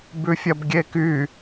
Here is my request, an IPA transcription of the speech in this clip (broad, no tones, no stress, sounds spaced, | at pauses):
b ʉ fʲ ɐ b ɡʲ e k y